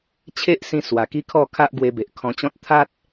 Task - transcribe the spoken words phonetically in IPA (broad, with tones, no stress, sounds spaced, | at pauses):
t͡ɕʰ e˦ ʔ s ĩ˧ s w a˨˩ k i˦ kʰ ɔ˥˧ kʰ a˦ ʔ ɡ w e˧ b e˨ ʔ kʰ ɔ̃˧ t͡ɕ ɔ̃˦ t̚ t̪ʰ a˦ t̚